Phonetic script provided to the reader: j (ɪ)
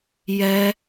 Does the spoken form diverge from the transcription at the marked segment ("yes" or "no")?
yes